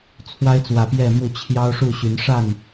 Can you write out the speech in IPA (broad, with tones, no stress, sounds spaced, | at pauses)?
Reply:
t͡sʰ w a˦ ɪ̯ t͡s w ä˨˩ p j ɛ˥˨ m u˥˨ t͡ɕʰ j ɑ˦ ʊ̯ ʂ u˥˨ ɕ y˨˦ n ʂ a˥˨ n